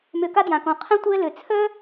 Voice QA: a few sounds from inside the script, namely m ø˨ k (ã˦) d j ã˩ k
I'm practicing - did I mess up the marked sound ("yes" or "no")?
yes